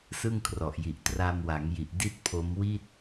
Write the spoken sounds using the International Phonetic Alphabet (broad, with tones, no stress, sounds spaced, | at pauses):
s ɯ˥˩ ŋ kʰ r ɔ˨˩ ʔ j i˨˩ ʔ t r a˧ m w a˩˦ ŋ j i˨˩ ʔ d i˥˩ t̚ pʰ o˦˥ m w i˥˩ t̚